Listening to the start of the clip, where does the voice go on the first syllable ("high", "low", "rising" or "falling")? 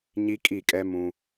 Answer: high